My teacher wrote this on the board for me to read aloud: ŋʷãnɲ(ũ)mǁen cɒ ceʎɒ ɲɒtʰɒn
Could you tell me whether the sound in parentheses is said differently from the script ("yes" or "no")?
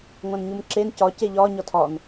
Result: yes